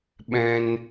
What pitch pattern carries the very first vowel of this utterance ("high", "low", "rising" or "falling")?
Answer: high